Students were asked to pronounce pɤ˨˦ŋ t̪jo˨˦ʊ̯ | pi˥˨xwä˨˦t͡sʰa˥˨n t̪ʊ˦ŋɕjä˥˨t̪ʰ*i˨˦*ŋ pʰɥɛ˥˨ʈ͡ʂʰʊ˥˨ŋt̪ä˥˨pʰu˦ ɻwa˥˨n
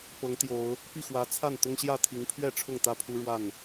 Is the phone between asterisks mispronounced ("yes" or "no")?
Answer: no